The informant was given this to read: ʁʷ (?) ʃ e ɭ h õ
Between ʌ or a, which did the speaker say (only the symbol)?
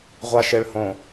a